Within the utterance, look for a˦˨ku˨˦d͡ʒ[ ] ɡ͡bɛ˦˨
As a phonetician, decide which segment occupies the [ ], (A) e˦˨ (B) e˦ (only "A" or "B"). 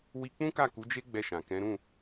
B